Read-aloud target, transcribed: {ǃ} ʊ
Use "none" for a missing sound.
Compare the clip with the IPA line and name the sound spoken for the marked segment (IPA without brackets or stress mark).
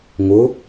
ŋ